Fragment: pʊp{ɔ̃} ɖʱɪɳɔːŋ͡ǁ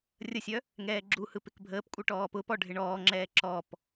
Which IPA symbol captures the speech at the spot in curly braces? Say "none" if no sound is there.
ɔ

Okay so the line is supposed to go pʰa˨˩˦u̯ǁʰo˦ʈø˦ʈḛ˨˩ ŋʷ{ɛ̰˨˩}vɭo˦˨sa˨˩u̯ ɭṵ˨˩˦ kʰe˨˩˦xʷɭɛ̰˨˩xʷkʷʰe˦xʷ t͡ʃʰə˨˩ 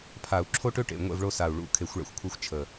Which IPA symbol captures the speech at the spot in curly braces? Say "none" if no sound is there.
ɛ̰˦˨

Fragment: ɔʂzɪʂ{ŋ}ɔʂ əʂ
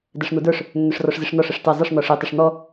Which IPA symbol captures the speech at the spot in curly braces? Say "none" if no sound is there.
n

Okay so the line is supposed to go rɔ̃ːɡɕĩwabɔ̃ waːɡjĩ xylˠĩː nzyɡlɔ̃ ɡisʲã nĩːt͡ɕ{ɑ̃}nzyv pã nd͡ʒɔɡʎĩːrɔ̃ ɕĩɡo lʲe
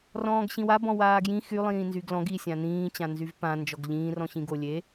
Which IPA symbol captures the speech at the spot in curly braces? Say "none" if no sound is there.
ã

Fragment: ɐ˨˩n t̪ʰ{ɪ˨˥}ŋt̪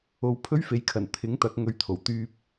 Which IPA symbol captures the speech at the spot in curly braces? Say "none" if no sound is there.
ɪ˨˥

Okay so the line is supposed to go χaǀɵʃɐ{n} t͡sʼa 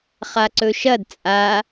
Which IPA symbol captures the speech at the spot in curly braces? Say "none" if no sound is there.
d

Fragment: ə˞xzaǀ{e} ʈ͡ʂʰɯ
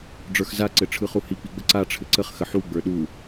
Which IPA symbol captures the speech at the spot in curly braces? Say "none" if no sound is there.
ɘ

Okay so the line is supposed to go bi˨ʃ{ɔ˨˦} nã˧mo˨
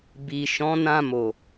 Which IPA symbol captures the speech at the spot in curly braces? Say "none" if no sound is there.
ɔ̃˨˦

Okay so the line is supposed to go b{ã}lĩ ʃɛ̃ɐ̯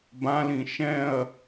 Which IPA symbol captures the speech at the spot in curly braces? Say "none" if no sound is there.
ã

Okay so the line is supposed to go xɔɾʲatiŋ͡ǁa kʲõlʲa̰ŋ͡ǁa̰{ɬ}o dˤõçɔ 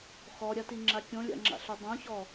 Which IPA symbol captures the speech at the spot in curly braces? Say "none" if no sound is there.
ɬ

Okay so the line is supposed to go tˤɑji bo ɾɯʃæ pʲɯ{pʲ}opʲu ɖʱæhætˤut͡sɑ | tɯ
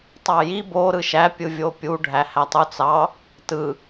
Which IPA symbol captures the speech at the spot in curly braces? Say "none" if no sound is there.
vʲ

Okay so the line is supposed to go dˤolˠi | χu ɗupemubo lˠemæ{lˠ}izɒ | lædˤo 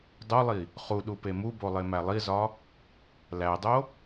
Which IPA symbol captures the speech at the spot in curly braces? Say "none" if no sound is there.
lˠ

